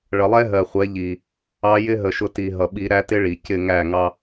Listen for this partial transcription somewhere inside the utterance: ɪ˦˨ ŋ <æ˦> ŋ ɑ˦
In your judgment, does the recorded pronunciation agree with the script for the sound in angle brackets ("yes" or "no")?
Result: no